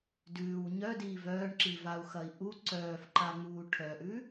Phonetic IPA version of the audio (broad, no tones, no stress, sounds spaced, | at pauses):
d ʉː w ɲ œ d iː v œː ɳ ǁ i v a u̯ x ɐ i̯ ʔ u ǀ œː f ǃ a ŋ͡m uː ʈʰ œ ʔ ʉ